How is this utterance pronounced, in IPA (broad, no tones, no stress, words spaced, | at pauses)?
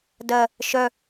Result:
dɜ | ʃœ